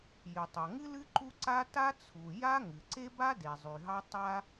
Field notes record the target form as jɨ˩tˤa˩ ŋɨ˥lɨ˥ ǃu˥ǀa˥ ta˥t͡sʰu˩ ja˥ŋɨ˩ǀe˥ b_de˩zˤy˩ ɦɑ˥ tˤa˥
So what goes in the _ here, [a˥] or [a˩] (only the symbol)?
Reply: a˥